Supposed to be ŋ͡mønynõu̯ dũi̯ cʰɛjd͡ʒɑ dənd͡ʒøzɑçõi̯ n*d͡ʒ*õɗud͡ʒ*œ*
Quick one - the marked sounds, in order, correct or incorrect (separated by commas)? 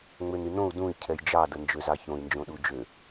correct, incorrect